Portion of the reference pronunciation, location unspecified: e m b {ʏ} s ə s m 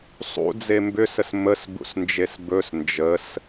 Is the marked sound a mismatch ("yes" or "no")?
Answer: no